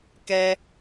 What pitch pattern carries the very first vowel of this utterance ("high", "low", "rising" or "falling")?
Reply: high